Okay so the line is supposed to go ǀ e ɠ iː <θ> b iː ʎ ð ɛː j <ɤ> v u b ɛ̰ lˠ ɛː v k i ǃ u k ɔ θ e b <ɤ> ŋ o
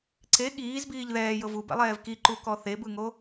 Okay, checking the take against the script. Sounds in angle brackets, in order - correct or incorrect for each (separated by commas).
incorrect, correct, incorrect